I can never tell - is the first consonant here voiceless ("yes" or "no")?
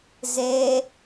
no